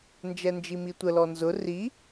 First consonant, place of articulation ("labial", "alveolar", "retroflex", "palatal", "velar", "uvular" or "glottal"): alveolar